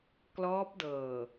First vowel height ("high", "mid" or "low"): mid